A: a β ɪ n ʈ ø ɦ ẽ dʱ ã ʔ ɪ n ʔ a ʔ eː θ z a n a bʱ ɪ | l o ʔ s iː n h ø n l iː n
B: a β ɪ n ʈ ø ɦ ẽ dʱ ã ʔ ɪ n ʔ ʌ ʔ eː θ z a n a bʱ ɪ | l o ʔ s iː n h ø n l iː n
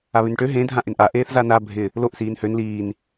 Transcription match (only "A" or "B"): A